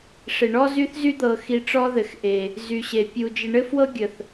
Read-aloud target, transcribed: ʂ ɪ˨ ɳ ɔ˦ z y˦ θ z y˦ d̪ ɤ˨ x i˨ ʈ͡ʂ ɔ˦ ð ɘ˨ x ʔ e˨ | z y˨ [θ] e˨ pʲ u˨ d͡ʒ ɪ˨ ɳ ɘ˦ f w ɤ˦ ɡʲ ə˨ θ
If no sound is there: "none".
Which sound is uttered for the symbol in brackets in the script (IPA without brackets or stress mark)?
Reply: ɕ